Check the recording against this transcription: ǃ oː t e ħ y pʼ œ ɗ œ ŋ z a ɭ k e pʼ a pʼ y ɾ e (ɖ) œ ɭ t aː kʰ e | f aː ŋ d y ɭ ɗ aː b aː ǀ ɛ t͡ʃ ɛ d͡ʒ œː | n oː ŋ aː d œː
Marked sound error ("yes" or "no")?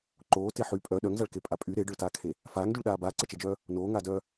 no